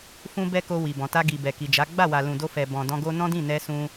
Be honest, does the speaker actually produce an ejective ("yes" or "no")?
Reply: no